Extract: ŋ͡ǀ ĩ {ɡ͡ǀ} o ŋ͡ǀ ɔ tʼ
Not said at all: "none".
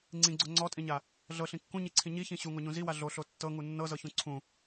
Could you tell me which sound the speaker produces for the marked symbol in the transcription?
ɡ͡ǀ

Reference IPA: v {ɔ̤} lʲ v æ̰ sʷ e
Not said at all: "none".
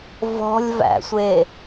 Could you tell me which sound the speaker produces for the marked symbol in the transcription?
ɔ̤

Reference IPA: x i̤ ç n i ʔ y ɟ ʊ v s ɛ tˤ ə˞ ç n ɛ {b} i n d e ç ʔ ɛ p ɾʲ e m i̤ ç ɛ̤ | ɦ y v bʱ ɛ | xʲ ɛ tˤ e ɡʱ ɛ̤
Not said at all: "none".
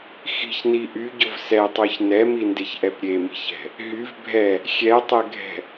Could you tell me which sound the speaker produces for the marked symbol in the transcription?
m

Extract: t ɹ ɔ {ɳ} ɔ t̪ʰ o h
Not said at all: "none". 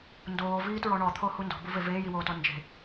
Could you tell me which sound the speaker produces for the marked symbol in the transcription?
ɳ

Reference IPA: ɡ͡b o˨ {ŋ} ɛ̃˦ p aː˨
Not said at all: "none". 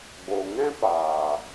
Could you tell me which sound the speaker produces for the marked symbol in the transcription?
ŋ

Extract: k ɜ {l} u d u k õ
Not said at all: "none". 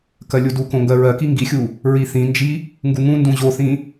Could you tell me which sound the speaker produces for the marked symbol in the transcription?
lʲ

